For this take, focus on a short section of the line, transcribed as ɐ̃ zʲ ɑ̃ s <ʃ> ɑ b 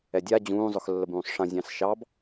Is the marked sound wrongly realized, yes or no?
no